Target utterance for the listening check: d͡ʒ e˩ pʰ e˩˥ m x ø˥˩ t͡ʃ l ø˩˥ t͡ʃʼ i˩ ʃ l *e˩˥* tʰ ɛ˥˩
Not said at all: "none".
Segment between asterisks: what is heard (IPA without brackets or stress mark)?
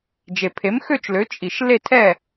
e˥˩